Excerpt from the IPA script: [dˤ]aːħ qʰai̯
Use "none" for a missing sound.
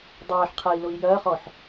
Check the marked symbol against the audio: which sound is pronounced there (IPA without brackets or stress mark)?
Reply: dˤ